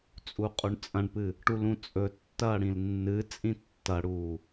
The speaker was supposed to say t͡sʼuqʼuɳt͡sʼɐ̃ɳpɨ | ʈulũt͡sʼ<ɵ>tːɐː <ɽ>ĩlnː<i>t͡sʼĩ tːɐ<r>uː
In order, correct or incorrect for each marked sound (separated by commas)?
correct, correct, incorrect, incorrect